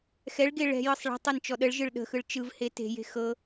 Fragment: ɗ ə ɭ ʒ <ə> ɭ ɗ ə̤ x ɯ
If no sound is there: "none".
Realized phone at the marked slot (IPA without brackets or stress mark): ɯ